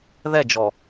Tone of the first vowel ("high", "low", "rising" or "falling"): falling